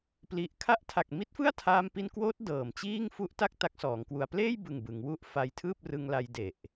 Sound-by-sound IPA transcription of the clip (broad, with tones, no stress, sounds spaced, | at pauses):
p l i˨˩ ʔ kʰ a˦˥ ʔ tʰ a˨˩ k̚ m i˦˥ t̚ f ɯ˥˩ a̯ tʰ aː˧ m p i˧ n k w oː˦˥ t̚ d ɤː˨˩ m t͡ɕ iː˥˩ ŋ f u˦˥ ʔ t a˥˩ k̚ t a˦˥ k̚ s ɔː˩˦ ŋ k w u˧ a̯ p l eː˥˩ j b ɯ˨˩ ŋ b ɯ˩˦ ŋ w u˦˥ ʔ f a˧ j tʰ ɯː˥˩ p̚ r ɯ˧ ŋ l a˧ j d e˨˩ ʔ